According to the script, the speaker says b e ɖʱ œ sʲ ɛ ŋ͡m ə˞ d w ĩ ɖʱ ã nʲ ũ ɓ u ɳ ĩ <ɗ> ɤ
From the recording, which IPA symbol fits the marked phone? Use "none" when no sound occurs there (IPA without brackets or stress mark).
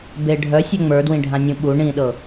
ɗ